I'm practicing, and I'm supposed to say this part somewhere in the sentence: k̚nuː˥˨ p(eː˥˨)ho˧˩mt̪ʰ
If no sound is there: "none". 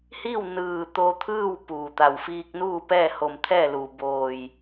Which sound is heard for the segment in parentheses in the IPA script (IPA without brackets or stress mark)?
ɛː˥˨